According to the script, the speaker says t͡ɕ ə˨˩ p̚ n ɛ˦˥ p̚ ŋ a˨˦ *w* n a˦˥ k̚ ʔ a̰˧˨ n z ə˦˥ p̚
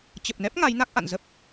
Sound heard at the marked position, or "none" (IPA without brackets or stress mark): j